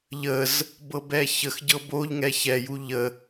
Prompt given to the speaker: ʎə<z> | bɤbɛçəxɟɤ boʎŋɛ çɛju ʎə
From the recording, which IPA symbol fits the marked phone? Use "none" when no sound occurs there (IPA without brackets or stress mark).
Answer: z